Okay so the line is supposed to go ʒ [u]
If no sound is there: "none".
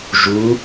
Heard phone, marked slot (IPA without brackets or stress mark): u